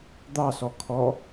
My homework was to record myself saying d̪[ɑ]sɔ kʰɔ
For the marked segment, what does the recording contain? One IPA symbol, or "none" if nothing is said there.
ɑ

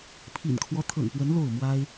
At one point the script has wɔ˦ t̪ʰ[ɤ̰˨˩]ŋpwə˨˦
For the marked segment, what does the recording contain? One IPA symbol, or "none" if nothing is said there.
ɤ̰˨˩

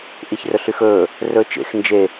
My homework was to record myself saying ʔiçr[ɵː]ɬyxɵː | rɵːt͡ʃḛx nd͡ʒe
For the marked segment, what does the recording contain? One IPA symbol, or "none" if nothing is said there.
ɵ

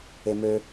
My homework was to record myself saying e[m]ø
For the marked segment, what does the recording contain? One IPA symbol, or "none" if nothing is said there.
m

